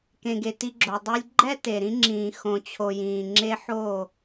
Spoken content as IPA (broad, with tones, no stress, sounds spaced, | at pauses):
k ẽ˨ ɡ e˨ t i˧ ɡ͡ǁ o˨ dˤ i˧ lʲ ɡ͡ǃ ɛ˦ t e˨ ɾ ĩ˧ ŋ͡ǁ ĩː˨ x õ˨ t͡ɕʰ o˨ j ĩː˨ ŋ͡ǁ e˧ ħ o˦˨